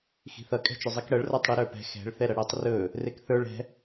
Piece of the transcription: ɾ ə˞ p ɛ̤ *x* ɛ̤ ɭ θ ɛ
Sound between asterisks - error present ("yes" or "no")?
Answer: no